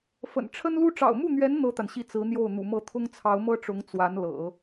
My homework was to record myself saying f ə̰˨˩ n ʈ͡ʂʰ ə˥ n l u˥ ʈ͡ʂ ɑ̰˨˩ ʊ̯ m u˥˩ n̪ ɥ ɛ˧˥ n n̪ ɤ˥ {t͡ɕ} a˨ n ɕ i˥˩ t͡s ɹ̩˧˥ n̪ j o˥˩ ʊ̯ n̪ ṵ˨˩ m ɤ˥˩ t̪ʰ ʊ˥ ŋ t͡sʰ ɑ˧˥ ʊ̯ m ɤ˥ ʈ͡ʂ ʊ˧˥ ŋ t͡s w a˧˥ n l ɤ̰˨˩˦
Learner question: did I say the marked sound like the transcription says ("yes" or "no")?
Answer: no